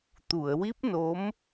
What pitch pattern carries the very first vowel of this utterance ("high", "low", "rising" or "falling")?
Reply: low